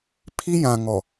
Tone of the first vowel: high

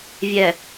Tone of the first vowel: low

